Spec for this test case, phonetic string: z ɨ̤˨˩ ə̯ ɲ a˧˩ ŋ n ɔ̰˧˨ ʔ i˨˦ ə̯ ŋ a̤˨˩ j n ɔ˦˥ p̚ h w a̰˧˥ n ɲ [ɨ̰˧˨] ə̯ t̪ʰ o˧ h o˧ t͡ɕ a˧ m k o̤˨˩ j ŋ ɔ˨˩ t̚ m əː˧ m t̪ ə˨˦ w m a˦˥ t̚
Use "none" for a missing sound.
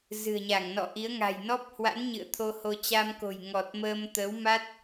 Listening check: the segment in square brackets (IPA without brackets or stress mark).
ɨ̰˧˨